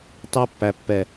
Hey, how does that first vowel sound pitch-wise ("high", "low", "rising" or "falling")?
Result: high